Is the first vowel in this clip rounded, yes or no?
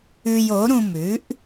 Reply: yes